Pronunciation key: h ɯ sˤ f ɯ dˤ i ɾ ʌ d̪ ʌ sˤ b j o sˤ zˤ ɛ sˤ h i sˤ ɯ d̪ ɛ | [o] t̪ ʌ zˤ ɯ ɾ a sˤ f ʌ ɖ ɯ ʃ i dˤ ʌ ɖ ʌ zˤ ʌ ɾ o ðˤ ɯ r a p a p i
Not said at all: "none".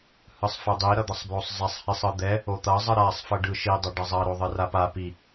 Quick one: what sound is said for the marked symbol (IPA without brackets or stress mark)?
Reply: o